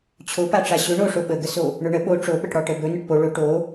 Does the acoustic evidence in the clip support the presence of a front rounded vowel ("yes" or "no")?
no